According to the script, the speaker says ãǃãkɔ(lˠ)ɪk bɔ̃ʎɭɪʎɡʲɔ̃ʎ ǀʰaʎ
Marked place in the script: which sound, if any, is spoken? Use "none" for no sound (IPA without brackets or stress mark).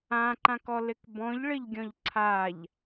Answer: l